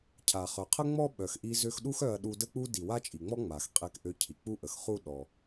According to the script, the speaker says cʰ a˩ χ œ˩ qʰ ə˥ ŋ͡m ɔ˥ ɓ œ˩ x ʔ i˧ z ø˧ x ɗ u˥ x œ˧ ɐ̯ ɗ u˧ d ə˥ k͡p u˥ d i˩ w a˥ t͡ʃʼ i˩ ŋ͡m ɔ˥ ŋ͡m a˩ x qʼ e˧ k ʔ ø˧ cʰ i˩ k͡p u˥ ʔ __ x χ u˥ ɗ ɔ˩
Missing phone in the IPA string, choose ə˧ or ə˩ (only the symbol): ə˩